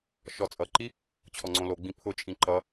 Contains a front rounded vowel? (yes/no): no